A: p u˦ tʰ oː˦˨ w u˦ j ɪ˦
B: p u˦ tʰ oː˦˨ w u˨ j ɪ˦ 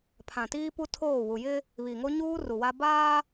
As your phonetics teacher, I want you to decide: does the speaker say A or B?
B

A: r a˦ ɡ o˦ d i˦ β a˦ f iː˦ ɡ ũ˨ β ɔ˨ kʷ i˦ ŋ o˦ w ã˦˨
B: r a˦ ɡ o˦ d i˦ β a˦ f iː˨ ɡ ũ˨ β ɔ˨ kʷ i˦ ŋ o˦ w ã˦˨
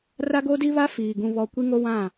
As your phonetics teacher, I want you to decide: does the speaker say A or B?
B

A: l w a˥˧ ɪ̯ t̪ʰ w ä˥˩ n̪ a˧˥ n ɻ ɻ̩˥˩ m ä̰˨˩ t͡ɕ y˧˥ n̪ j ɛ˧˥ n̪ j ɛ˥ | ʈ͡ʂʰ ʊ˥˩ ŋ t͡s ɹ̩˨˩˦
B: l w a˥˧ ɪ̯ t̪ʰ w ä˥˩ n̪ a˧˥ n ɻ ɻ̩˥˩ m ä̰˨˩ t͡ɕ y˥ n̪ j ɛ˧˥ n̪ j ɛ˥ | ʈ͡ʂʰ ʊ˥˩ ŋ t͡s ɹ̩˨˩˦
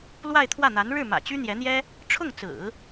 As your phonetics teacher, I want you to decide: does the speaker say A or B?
B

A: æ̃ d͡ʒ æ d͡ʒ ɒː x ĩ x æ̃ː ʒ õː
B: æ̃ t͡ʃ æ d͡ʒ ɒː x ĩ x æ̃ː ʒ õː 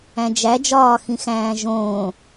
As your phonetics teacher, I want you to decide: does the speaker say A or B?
A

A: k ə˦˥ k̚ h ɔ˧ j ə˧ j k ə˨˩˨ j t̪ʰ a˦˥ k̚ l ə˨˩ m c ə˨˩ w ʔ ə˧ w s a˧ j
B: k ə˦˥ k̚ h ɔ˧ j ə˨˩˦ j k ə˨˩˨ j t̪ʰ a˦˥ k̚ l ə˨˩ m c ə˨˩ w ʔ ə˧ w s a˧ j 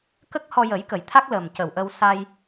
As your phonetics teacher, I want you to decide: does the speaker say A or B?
B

